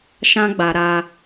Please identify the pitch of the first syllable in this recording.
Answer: high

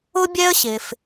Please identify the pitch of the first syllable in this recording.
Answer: high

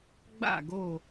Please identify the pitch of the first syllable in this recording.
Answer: falling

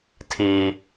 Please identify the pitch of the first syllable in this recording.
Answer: low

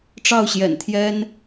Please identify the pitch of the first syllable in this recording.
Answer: falling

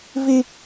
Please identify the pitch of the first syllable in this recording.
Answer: high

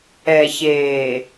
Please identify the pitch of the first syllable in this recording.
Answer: low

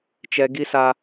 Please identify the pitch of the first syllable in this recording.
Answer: high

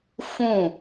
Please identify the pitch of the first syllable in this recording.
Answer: falling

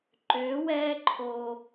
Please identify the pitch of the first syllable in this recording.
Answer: rising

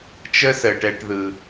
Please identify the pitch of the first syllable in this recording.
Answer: high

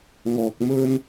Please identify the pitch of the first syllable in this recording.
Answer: low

